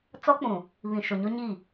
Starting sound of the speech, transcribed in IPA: t͡s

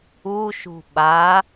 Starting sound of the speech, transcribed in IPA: u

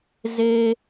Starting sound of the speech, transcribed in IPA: z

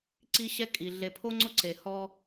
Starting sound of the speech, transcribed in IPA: ǀ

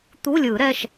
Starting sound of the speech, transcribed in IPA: t̪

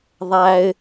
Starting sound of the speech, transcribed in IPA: ðˤ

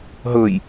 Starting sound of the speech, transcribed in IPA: ɦ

